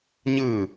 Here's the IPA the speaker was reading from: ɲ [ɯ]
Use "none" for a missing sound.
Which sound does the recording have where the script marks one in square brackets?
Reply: ɯ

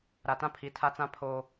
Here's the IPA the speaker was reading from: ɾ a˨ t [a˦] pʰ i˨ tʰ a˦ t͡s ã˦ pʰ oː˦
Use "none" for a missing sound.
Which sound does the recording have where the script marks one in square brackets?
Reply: ã˦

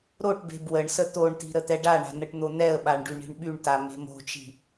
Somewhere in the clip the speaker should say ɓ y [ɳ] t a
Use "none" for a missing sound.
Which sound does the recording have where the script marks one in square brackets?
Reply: ɳ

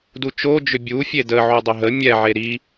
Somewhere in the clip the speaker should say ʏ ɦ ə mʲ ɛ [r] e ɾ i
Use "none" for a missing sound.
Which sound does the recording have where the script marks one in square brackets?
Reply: ʕ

